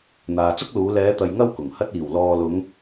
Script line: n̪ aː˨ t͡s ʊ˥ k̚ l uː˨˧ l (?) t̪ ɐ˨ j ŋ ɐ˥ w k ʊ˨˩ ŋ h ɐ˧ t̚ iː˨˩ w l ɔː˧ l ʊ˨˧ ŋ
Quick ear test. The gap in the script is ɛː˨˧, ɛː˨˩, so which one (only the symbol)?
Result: ɛː˨˧